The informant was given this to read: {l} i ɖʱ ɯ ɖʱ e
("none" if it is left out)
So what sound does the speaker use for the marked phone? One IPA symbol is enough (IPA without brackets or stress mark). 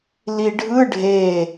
l